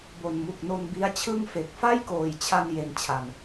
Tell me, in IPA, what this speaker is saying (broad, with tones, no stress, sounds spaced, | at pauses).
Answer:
b o˨˩ n m u˨˩ k̚ n o˧ n b i˦˥ a̯ t͡ɕʰ ɯ˥˩ ŋ f e˨˩ k̚ f a˥˩ j k oː˨˩ j t͡ɕʰ a˧ n j e˧ n t͡ɕʰ a˨˩ n